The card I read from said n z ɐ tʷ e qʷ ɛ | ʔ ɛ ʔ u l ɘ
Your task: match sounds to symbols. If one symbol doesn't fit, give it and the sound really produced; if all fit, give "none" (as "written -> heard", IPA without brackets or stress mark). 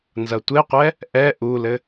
none